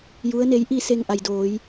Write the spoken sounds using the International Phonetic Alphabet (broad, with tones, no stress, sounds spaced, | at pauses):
j u˧˥ ə̯ n e˧˥ j ʔ i˥˨ s e˧ ŋ ʔ a˩ j d oː˩˧ j